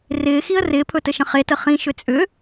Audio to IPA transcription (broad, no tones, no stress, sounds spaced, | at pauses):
r ɪː x i ə̯ r ɪː pʰ ɵ t ɘ ʃ ə̃ χ e t ə χ ĩ ʃ ʏ t͡sʼ ʏ